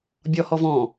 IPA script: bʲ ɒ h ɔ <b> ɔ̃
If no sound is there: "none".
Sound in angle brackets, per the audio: v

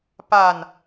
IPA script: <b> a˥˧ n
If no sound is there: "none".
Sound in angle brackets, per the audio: p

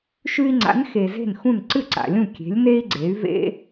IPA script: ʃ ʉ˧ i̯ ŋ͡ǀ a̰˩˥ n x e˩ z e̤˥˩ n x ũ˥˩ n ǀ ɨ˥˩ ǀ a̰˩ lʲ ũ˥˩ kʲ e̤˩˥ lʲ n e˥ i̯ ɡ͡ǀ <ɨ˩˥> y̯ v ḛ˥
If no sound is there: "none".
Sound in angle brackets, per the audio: e˩˥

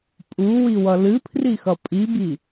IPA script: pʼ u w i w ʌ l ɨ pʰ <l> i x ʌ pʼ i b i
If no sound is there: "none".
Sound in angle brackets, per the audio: r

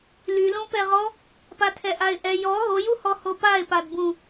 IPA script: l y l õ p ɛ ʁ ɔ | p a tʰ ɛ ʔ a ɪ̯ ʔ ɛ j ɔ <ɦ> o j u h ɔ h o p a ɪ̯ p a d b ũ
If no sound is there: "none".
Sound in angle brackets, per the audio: ɦ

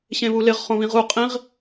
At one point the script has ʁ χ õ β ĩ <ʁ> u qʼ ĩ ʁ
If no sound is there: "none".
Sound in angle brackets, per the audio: ʁ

